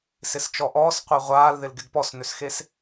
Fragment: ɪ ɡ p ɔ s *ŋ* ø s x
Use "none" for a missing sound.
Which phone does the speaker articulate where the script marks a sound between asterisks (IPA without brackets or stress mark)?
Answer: n